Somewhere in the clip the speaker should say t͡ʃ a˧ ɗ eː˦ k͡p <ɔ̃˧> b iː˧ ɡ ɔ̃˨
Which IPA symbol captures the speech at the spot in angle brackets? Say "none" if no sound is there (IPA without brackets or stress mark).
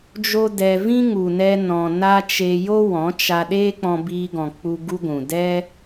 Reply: ɔ̃˧